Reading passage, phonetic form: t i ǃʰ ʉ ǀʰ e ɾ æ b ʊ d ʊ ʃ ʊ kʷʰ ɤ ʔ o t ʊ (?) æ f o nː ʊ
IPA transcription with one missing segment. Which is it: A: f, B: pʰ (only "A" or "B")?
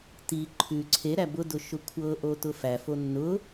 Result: A